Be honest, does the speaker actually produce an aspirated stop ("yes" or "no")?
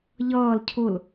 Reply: yes